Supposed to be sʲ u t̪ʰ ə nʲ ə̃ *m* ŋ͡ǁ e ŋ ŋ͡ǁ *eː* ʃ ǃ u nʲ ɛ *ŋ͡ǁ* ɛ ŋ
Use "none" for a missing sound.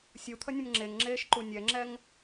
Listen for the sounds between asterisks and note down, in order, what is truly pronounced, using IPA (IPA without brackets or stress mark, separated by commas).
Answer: m, eː, ŋ͡ǁ